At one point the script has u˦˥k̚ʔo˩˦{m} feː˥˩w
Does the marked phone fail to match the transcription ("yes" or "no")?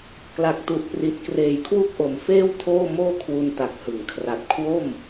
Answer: no